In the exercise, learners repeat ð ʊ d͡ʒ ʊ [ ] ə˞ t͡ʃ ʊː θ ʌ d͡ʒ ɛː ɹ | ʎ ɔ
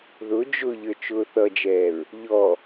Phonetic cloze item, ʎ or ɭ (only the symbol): ʎ